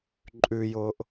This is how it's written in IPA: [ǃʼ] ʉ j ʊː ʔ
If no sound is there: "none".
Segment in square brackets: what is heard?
ǃʼ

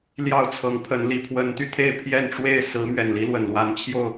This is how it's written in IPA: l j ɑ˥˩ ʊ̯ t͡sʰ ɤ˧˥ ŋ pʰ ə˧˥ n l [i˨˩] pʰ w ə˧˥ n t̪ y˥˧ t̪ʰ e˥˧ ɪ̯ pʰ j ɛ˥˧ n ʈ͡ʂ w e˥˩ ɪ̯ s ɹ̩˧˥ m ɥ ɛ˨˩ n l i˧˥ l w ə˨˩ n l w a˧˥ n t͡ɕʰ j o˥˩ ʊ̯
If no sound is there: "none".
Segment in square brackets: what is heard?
i˨˩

